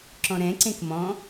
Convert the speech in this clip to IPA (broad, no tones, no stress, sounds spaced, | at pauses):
ǁ ɔ̃ ɾ ɛ̃ ǀ ẽ k m ɔ̃